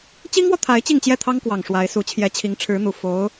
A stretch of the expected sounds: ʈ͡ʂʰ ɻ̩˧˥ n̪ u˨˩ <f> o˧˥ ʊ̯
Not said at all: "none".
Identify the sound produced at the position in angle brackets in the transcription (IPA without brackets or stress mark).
f